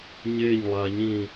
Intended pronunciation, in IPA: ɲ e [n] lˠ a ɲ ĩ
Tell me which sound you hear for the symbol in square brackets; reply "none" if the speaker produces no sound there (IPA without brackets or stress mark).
ɲ